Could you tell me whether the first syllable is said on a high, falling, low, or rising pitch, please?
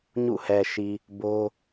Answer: falling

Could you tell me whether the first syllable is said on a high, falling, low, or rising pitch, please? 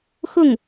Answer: falling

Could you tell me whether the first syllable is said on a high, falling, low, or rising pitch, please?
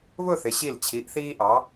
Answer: falling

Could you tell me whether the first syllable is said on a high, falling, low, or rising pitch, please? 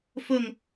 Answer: falling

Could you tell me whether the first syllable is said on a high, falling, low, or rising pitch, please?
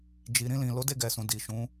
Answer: low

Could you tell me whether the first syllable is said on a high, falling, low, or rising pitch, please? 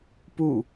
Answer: falling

